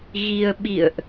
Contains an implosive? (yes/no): yes